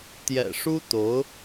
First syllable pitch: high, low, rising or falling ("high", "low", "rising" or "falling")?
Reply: low